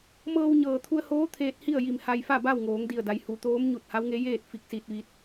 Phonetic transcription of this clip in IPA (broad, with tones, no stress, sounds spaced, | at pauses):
m ɤː˧ w ɲ ɤː˩ t̪ʰ u˧ ə̯ h oː˧˥ t̪ʰ eː˧ t̚ h i˥˨ ə̯ j i˧˩ m h a˧ j f a˥˨ b a˥˨ w ŋ oː˩˧ ŋ d i˧˩ ə̯ d a˩˧ j h u˩˧ t̪ oː˧˥ m ɲ u˧˩ t̚ h a˧˥ w ŋ e˧˥ j eː˥˨ t̚ f i˧ k̚ s i˧ t̚ ʋ i˧ t̚